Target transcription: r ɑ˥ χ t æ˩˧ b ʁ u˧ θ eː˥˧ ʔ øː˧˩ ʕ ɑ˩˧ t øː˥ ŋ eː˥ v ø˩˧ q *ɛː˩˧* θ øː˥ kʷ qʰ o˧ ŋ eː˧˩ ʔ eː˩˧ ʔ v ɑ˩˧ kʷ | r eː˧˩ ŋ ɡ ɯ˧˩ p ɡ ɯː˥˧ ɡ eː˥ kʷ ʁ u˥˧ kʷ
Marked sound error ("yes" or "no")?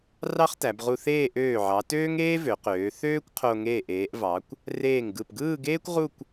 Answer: yes